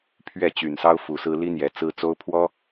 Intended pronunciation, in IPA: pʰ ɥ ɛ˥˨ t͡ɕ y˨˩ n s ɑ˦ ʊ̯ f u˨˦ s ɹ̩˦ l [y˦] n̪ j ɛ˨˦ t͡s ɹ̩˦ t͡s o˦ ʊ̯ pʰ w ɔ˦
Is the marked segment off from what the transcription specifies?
yes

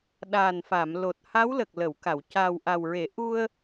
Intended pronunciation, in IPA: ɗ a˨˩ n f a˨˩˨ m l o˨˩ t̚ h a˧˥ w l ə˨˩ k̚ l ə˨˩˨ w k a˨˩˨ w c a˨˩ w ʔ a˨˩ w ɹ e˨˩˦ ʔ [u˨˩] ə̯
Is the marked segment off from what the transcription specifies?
yes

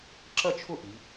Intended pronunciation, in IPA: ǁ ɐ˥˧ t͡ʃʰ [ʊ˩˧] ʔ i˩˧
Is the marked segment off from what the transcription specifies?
yes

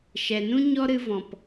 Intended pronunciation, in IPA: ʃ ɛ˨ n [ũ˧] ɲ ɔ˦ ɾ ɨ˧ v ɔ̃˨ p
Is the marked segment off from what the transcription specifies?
yes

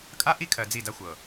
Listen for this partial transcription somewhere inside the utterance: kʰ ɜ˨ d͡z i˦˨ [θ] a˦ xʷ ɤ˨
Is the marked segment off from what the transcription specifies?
yes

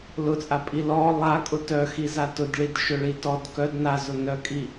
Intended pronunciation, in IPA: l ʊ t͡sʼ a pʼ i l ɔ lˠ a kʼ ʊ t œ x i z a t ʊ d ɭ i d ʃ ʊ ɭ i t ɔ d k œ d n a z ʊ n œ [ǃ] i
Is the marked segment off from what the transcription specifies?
yes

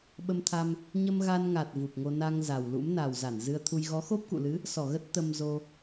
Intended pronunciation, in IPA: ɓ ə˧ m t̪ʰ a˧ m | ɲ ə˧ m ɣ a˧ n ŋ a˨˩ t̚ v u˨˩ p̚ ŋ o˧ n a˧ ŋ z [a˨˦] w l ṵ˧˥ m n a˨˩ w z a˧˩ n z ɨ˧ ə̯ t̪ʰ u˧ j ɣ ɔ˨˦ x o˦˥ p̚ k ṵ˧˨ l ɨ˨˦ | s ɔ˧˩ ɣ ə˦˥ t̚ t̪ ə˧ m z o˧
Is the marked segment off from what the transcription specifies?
yes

